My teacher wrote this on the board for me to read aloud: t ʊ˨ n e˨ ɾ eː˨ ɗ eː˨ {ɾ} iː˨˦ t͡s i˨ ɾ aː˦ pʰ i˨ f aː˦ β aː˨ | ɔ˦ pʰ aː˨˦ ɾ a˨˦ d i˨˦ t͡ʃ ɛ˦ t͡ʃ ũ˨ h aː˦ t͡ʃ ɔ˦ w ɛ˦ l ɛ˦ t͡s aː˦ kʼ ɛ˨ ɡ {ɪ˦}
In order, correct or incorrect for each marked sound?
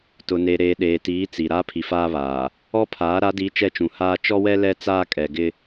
incorrect, correct

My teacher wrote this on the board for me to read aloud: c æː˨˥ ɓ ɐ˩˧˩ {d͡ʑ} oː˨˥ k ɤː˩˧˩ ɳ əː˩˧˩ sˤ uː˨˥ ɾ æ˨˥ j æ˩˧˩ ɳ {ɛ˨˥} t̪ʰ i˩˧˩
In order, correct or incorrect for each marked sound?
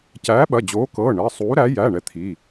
correct, correct

